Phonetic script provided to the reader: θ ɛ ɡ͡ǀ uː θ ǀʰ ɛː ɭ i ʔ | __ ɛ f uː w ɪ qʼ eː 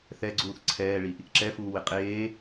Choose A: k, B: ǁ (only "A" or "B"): B